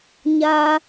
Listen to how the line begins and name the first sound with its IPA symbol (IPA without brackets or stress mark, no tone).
ɲ